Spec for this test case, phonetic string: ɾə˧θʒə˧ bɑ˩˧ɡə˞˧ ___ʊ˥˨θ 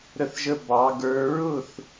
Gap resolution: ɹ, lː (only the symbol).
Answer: ɹ